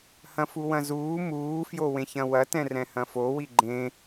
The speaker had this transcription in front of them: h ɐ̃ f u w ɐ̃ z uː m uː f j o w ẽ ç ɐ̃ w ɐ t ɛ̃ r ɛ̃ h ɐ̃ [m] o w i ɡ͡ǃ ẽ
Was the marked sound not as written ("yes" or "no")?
yes